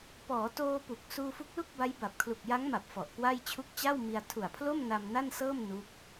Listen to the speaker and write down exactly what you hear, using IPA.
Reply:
p ɔː˩˦ t oː˧ p u˨˩ k̚ s uː˧ f u˦˥ k̚ l u˥˩ k̚ b a˦˥ j b a˨˩ p̚ kʰ l u˨˩ k̚ j a˦˥ ŋ m a˨˩ p̚ f ɔ˨˩ ʔ k w a˥˩ j t͡ɕʰ u˦˥ k̚ t͡ɕ a˥˩ w m i˧ a̯ tʰ u˨˩ a̯ pʰ l o˥˩ m n a˧ m n a˥˩ n s ɤː˥˩ m n u˦˥ k̚

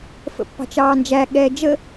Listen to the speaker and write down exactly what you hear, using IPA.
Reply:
f ə̰ pː ɑ̤ t͡ʃ ɑː n d͡ʒ æ ɠ ɛː d͡ʒ ə

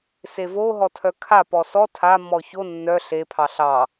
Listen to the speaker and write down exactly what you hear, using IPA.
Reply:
s e v o ɦ ɔ tʰ œ kʰ a p ɔ s ɔ tʰ a mː ɔ ç o nː œ ɬ e pʰ ɑ ɬ ɑ

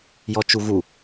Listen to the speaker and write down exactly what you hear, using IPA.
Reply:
j ɔ t͡ʃ u ɣ u

